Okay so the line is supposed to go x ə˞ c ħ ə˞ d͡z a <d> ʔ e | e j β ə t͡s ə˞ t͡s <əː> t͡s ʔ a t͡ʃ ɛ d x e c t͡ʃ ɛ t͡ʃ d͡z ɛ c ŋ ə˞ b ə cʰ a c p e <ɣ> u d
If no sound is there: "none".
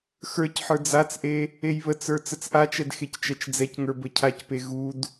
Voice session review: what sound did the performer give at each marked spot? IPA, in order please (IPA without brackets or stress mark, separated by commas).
t͡s, ə, ɣ